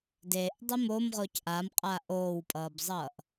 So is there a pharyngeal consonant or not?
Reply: no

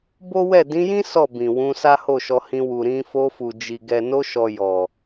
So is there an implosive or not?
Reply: no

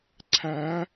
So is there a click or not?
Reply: yes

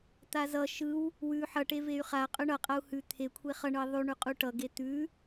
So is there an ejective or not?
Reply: yes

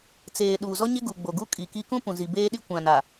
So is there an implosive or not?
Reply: yes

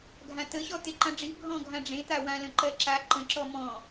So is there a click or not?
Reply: yes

